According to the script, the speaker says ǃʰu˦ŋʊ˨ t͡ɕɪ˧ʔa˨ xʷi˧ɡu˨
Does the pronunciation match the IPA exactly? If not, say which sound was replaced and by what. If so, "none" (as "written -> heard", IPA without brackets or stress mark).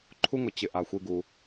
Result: none